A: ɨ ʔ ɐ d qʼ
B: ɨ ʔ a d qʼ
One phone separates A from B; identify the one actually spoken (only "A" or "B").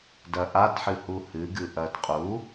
A